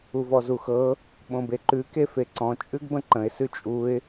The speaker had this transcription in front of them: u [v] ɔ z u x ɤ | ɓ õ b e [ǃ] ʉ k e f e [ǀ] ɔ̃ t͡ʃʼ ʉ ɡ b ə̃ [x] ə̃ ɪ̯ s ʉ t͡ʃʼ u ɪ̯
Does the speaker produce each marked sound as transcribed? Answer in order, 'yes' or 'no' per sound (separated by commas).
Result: yes, yes, yes, no